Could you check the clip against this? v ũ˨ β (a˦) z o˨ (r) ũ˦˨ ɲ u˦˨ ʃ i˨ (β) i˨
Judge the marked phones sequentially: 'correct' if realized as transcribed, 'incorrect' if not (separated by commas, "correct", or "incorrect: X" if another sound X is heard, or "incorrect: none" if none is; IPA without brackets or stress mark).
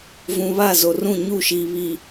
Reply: incorrect: a˦˨, correct, correct